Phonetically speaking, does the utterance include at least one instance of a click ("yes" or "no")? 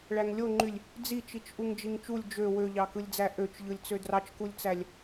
yes